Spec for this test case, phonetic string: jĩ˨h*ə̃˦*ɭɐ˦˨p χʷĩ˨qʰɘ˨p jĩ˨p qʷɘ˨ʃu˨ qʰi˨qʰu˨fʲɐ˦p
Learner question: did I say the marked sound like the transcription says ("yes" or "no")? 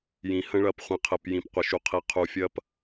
yes